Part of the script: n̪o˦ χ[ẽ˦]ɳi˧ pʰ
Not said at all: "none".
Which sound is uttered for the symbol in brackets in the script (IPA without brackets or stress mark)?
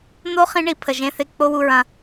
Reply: ĩ˦